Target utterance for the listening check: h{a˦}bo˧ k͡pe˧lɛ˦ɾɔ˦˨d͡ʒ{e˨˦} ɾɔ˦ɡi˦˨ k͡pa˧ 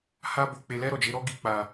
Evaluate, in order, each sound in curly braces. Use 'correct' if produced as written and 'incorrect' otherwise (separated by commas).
correct, correct